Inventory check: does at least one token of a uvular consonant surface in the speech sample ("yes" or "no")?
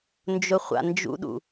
yes